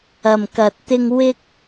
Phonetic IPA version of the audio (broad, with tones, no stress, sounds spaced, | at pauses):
ɐ˨ m k ɐ˨ t̚ t̪ ɪ˧ ŋ w ɪ˥ k̚